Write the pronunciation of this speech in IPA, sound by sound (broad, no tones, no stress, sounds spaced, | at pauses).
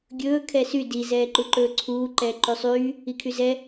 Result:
ɡʲ ɵː kʰ ɛ s y d i z ɛː ǃ u ǃ ɵː ǀʰ uː ǃ ɛː ǃ y sˤ yː | i kʰ y z ɛ